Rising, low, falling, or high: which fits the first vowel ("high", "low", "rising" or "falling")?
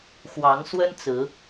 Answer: rising